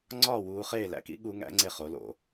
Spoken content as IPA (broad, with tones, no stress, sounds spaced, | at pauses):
ŋ͡ǀ ɒː˥˨ w uː˧ χ eː˥˨ l æ̰˧˥ k ḭ˧˥ ɠ u˧˥ ŋ æ̰˧˥ ŋ͡ǀ e˥˨ χ o˩˥ l o̰˥˨